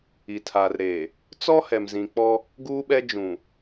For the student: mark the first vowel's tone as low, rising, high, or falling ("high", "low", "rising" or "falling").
low